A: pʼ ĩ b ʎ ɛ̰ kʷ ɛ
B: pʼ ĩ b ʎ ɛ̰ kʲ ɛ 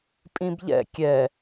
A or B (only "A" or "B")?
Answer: B